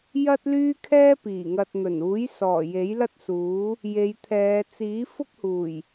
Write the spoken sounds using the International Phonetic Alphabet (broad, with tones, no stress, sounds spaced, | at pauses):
j ɐ˥ t̚ l yː˥ kʰ ɛː˥ p iː˨˩ ŋ ɐ˨ t̚ n̪ ɵ˨˩ n uː˨˥ j s ɔː˨˩ j e˨˥ j l ɐ˥ t̚ s uː˨˥ | j e˨˧ j t̪ʰ ɛː˨˧ t͡s iː˨˥ f ʊ˥ k̚ h uː˨˩ j